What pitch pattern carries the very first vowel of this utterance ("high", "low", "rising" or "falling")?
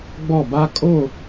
falling